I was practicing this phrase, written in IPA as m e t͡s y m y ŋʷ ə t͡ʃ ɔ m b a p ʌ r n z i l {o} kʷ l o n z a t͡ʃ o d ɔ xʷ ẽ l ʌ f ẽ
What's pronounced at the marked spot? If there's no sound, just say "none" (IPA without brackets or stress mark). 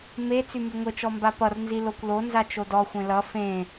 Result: o